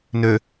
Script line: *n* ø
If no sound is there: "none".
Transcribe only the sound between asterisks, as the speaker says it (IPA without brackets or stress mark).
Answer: n